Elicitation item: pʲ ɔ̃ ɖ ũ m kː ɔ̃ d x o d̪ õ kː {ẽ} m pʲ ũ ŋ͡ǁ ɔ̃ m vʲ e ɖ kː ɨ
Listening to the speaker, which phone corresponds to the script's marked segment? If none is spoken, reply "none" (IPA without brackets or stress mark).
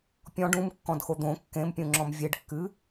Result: ẽ